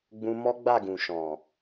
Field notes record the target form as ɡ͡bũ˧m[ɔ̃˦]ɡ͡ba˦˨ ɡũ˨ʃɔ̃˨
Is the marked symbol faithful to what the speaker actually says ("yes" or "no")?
no